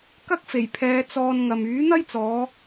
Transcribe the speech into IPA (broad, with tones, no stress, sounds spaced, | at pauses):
k ɐ˥ k̚ f e˨˩ j pʰ ɛː˨˧ t͡s ɔː˧ n ŋ ɐ˨ m yː˨˥ n̪ ɐ˥ j t͡s ɔː˨˧